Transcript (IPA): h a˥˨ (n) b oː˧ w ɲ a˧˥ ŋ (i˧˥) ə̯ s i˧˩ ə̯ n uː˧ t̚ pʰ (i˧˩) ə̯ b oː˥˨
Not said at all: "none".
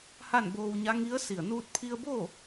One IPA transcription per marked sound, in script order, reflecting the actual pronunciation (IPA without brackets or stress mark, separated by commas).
n, i˧˥, i˧